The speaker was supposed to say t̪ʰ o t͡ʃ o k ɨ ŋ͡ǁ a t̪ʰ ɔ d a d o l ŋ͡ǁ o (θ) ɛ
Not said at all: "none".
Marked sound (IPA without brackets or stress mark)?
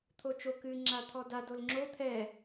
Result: t̪ʰ